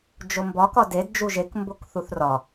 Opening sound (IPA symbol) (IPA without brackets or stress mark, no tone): d͡ʒ